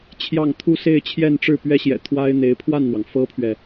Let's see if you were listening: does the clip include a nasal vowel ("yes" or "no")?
no